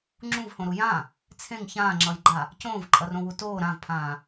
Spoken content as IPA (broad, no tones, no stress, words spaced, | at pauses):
ŋ͡ǁũvhõɾu jã | t͡sʰẽŋ çãːŋ͡ǁʌjɡ͡ǃa | cõːvǃʼʌrõwu toː ɾãvpʰãː